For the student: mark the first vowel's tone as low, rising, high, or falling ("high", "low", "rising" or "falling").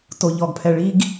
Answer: low